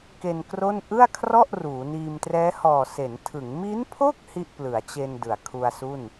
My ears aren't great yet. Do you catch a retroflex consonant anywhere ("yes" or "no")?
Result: no